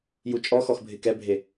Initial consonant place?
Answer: palatal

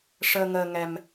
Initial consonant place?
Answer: retroflex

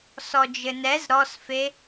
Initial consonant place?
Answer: alveolar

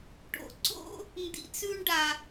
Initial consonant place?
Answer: retroflex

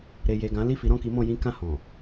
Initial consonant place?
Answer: alveolar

